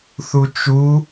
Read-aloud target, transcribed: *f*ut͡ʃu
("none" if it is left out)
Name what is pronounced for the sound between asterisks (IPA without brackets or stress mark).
θ